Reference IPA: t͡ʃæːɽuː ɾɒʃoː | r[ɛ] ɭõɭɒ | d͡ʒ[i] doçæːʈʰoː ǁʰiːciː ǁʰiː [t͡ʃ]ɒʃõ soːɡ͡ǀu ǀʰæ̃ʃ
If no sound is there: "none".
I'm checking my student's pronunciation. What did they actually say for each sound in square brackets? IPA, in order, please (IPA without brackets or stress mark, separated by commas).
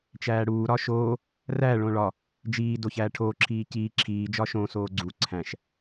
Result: æ, iː, d͡ʒ